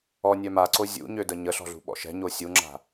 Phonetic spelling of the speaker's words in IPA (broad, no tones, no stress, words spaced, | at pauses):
ɔnʲœ maǀo zʲṵɲødə ɲəɬɔ̤ɮṳɓɔ̰ ʃɛ̤ɲo sʲuŋ͡ǁa̤